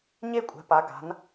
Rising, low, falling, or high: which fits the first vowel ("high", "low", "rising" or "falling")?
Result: falling